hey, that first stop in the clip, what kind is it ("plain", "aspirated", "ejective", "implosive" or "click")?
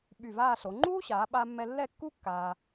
implosive